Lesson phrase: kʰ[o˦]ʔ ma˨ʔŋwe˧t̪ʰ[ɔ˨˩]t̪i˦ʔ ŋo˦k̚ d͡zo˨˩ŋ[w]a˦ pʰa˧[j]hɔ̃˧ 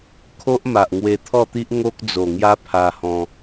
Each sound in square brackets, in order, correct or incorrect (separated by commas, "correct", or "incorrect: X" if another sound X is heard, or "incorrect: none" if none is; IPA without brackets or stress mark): correct, incorrect: ɔ˥˧, incorrect: j, incorrect: none